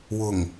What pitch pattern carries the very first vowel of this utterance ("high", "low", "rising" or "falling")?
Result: low